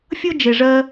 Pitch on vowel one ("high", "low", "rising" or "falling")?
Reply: high